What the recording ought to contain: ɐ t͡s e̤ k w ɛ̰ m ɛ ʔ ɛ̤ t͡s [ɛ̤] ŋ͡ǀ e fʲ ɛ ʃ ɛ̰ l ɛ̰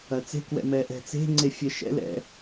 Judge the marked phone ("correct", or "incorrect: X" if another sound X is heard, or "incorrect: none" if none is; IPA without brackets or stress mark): incorrect: e̤